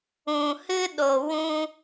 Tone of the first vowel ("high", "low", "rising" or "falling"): low